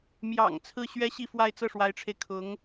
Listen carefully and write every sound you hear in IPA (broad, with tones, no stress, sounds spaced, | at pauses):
m j ɑ̰˨˩ ŋ t͡sʰ ɹ̩˥˩ ɕ ɥ ɛ˥ ɕ i˥˧ f w a˥˧ ɪ̯ t͡s ɤ˥˩ ʂ w a˧˥ ɪ̯ ʈ͡ʂʰ e˧ ɪ̯ kʰ ʊ˧˥ ŋ